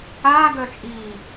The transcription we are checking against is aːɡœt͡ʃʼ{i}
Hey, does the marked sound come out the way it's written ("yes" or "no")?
no